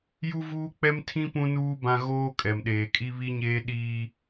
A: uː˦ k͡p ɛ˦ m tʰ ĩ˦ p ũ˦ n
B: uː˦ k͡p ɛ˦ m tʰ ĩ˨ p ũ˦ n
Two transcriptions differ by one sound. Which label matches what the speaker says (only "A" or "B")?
A